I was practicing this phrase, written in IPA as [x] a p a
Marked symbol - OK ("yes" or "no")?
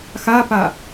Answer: yes